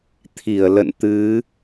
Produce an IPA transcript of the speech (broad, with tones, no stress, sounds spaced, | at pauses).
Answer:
t̪ʰ i˧˩ ə̯ l ə̰˧˨ n t̪ ɨ˨˦